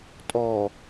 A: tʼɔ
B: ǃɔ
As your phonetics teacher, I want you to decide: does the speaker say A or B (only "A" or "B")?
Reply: A